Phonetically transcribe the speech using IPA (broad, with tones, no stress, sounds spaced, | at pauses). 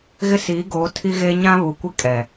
ɣ ɪ˦ s iː˨˦ ɡ oː˨˦ tʰ i˦ ɣ eː˦ ɲ ã˦ β u˨ kʷ i˦ kʼ ɛ˨